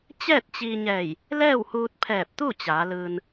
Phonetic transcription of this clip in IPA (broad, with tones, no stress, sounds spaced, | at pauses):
t͡ɕ ɛː˥˨ t̚ t͡ɕ iː˧ ɲ ɛː˧˩ j | l ɛː˥˨ w h uː˧ t̚ pʰ ɛː˧˩ p̚ t̪ u˥˨ t͡ɕ aː˩˧ l ɯː˧ n